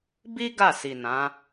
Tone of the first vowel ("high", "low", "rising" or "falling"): high